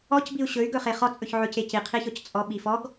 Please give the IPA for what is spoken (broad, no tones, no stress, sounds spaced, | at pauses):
ɔ c b i u̯ ɕ ɵ y̯ ɡ ɵ χ e χ ɔ t͡sʼ ɵ ç ʕ ɵ c e c i qʰ i ç ɔ c t͡sʼ ɔ ɓ i f ɔ ɡ